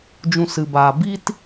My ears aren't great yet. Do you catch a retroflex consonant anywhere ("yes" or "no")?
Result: no